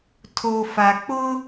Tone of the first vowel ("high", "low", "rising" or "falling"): low